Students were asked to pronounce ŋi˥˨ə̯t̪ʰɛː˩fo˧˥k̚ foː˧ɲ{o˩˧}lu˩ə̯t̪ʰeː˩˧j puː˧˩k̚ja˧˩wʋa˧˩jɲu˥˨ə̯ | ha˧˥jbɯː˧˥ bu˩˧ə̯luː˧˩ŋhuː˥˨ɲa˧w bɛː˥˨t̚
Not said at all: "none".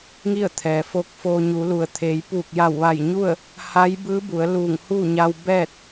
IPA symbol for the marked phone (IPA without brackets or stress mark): u˩˧